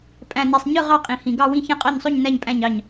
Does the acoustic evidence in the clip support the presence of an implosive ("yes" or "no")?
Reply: no